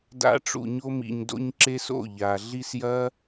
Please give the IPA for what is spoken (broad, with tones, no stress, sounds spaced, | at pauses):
d a̰˦ ʈ͡ʂ ṵ˧ ɲ o˦ m ḭ˧ ɲ d o̰˦ ɲ ǁ e˦ s o̰˦˨ ʎ a˨ ɮ i˧ s j ɐ˦